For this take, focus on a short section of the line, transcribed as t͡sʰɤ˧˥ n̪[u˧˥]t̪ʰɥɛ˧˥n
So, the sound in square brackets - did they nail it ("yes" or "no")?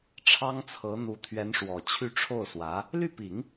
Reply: yes